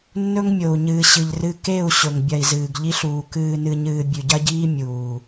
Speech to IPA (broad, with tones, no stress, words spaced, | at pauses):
nːɵ˦ŋmʲo˨u̯ɲɨː˨ ɕɨ˨ʎrɨ˦ ke˦˨u̯ ɕɵ˨ŋbʲɐ˨i̯zɨː˨ɡ ʎi˦ɬuː˨ kɨː˨nɨ˨ɲɨː˨ bʲʉ˨ɟɐ˦ɟiː˦ mʲuː˨